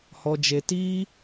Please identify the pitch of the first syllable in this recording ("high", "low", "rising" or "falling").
low